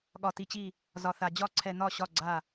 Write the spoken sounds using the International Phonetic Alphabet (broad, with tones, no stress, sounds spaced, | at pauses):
ɠ ɒ˧ t i˧ t͡ɕ i˥˨ | z ɒ˧ θ a˧ d͡ʑ ɒ˥˨ ǀʰ ɛ˧ n̪ ɒ˥˨ ɕ ɒ˥˨ ɡ͡ǀ a˥˨